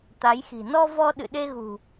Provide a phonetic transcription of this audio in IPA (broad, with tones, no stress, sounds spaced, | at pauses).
t̪ a˨˦ j x i̤˨˩ n ɔ˧ v ɔ˧ ɗ ɨ̰˧˨ ɗ e˧ ɣ ṳ˨˩